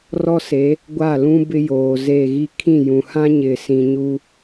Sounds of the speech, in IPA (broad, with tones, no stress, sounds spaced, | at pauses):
r ɔ˦ s e˨˦ | ɡʷ a˦˨ l ũ˦ b ɪ˦ j oː˨ z e˦˨ ɣ i˦ kʰ ĩ˦˨ j ũ˨ h ã˦ ɲ ɪ˨ s ĩ˨ ɲ u˦